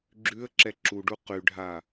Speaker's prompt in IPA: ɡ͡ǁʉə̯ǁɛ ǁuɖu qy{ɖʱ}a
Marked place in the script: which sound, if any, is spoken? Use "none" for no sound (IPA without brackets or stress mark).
ɖʱ